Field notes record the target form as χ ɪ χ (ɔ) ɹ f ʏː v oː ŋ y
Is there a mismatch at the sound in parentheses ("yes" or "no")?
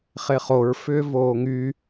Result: yes